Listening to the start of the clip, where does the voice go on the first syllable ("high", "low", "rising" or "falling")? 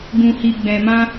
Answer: low